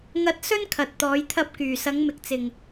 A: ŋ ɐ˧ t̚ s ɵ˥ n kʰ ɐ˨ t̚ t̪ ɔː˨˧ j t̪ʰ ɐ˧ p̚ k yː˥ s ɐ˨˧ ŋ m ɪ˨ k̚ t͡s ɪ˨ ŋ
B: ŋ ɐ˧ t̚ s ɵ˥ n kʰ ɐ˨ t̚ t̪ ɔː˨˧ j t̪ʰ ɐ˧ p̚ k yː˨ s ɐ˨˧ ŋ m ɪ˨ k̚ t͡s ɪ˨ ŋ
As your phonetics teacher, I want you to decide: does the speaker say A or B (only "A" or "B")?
B